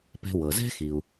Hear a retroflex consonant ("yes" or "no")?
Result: no